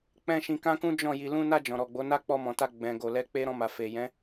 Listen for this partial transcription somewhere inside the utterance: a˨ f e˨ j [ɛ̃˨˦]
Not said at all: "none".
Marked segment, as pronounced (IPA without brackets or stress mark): ɛ̃˨˦